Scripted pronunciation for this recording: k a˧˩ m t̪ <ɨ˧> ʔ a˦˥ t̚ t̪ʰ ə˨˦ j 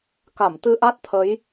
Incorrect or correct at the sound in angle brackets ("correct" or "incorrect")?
correct